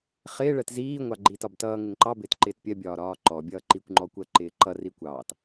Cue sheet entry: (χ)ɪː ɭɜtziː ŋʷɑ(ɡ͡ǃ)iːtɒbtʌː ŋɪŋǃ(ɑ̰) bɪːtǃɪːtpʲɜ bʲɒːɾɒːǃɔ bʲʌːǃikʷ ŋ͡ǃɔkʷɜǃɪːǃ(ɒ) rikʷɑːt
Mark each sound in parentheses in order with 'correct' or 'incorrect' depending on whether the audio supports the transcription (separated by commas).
correct, correct, incorrect, incorrect